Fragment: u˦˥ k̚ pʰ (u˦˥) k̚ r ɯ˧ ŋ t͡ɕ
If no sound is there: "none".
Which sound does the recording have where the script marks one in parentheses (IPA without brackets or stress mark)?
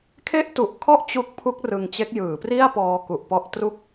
u˦˥